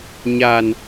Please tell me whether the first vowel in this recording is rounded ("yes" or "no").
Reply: no